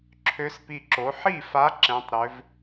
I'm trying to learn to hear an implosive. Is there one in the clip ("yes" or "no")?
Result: no